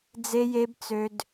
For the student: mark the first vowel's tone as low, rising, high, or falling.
high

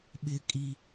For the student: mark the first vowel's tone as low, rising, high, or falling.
high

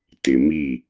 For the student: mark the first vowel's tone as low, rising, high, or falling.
low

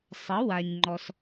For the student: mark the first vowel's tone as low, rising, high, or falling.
rising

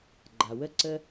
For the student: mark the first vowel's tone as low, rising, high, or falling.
low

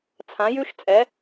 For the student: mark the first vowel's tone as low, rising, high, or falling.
rising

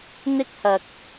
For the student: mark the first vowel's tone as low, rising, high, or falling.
high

